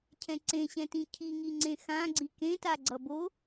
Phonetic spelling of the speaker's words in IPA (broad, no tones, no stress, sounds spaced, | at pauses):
cʰ ɛ̃ ǀ ẽ ɕ ɛ̃ t ĩ cʰ i ŋ i ŋ͡ǀ ẽ x ã ɡ͡ǀ i k ẽ t a ɡ͡ǀ ʌ b o